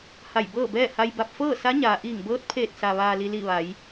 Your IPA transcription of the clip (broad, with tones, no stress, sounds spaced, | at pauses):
h a˧˩ j b ɤː˥˨ b ɛː˥˨ h a˧ j b a˧˩ p̚ f ɤː˥˨ s a˧˥ ɲ aː˩ ʔ iː˧˩ ŋ b ɤː˧˥ t̚ pʰ eː˧˩ t̚ s a˩ ʋ aː˩ l i˩ l i˧˩ ʋ a˩˧ j